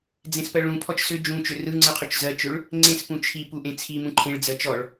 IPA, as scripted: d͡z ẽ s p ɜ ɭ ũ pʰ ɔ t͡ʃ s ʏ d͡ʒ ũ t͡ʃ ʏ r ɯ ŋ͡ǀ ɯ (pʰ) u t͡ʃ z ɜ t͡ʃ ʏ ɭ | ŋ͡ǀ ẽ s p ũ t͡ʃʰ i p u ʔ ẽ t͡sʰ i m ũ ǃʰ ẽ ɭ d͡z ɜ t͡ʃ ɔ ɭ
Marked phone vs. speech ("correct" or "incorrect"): incorrect